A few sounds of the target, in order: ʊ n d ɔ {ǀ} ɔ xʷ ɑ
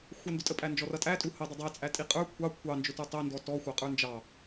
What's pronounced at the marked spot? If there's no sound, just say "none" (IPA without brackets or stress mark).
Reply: t